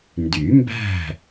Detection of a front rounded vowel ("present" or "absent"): present